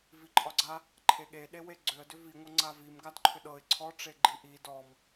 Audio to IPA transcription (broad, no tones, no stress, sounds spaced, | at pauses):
v i ǃʼ ɒ ɡ͡ǀ a | ǃʰ e ɠ e ɗ e w e ɡ͡ǀ ʏ ə̯ d ʏ v i ŋʷ ʌ ŋ͡ǀ a v i m ɡ a d ǃʰ ʏ ɗ ɤ ɪ̯ ǀʰ ɔ ʈ͡ʂ e ɡ͡ǃ i ʔ i d ɔ m